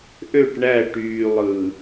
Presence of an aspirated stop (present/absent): absent